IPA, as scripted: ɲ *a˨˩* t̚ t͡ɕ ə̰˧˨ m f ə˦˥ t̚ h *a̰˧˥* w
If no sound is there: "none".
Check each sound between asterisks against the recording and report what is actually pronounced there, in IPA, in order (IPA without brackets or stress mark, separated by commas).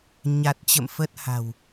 a˨˩, a̤˨˩